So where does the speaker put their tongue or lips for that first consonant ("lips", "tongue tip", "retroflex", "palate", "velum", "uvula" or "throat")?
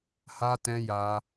throat